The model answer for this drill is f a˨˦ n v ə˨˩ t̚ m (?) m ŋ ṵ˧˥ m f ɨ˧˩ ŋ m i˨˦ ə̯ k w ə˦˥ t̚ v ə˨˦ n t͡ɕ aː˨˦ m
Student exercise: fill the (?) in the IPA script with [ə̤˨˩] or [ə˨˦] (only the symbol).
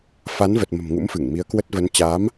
ə̤˨˩